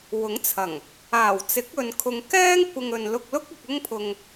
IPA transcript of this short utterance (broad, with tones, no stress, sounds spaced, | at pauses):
w ʊ˨˥ ŋ t͡sʰ ɐ˨˩ ŋ | aː˨˩ w t͡s ɪ˨˥ k̚ ɵ˨ n kʰ ʊ˨ ŋ k ɛː˥ ŋ kʷ ɪ˧ ŋ ɵ˨ n l ʊ˧ k̚ l ʊ˥ k̚ ɪ˧ k̚ ʊ˥ ŋ pʰ ʊ˧ ŋ